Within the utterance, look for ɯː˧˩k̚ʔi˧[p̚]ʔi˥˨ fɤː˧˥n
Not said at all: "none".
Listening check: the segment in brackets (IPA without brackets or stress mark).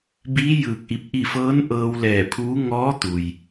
p̚